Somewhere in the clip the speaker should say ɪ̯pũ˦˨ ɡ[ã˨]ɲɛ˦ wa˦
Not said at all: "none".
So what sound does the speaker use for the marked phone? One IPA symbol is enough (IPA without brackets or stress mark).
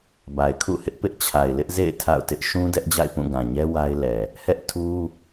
ã˨